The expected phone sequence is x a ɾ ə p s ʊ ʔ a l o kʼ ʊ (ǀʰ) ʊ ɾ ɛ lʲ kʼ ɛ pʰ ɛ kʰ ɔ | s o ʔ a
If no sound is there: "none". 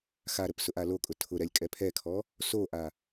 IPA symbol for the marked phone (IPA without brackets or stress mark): tʰ